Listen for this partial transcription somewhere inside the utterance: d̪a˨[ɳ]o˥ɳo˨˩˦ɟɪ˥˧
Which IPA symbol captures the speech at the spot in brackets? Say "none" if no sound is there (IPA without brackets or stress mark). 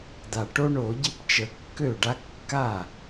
ʈ